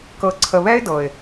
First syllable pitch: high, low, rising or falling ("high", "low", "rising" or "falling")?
rising